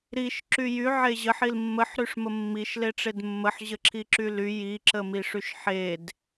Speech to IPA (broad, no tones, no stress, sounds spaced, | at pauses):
ɾ i ʃ ǁ y j y ʕ e ʑ ə ħ i l mː ə ħ ɾ y ʂ m ə mː i ʃ l e ʈ͡ʂ e d mː ə ħ ʑ ə ǁʰ i ǁ y l y j i ǁ ə m i ʂ y ʃ ħ e d